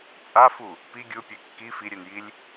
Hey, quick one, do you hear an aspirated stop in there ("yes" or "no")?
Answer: no